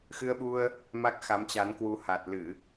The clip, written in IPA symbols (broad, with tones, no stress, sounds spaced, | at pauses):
x ɨ˧ ə̯ ɓ u˧ ə̯ | m a˦˥ k̚ x a˨˦ m t͡ɕ a˨˦ n k w u˨˦ h a˨˩ t̚ l ɨ˧˩˨